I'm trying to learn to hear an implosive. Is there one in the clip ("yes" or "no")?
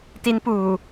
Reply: no